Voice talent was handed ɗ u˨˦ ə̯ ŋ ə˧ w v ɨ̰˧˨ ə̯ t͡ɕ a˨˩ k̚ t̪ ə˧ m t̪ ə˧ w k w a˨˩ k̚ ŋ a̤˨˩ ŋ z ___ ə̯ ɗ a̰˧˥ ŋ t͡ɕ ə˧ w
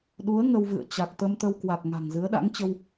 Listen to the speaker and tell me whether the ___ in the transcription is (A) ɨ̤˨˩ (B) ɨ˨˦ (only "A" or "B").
B